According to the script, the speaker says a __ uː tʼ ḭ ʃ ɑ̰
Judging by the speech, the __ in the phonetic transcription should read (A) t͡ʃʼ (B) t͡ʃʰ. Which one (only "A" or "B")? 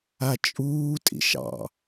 A